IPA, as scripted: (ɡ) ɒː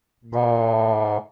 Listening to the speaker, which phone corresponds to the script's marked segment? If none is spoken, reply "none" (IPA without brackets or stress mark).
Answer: ɡ